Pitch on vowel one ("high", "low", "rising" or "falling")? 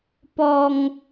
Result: high